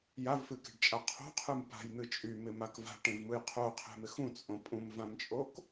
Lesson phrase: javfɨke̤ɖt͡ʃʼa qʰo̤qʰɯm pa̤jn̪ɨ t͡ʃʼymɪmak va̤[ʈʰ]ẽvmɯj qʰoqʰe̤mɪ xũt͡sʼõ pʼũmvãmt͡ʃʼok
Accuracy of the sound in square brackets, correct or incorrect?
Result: incorrect